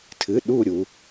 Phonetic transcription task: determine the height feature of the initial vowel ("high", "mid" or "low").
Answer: high